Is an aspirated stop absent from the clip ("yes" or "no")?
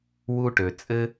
yes